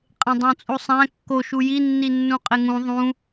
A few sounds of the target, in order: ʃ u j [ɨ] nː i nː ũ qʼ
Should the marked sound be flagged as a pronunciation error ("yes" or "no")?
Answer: yes